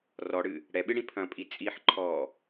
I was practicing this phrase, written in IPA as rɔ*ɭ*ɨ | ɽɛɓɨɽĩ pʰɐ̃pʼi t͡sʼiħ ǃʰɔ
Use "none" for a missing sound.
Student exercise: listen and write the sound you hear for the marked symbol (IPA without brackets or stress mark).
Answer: ɽ